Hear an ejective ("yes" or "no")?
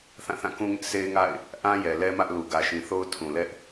no